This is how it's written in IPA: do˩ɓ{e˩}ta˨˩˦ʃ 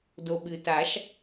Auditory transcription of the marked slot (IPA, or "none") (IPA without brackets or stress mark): ɨ˩